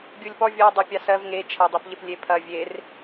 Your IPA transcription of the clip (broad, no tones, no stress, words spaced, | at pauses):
ɡʲulʲpɔ vʲɔ dˤɑpʲɑsɜv ŋe t͡ʃʰɐdˤepʎep lʲepʰɐ vʲer